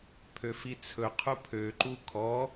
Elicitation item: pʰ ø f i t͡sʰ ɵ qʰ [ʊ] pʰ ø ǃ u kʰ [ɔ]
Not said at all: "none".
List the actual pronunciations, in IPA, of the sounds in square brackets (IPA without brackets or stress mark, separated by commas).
u, ɔ